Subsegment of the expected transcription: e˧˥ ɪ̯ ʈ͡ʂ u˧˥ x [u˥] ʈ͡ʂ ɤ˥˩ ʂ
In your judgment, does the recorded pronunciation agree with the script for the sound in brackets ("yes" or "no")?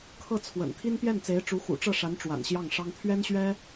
no